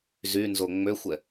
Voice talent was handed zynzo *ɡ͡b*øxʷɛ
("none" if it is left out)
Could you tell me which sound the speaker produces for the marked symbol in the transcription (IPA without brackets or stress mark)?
ŋ͡m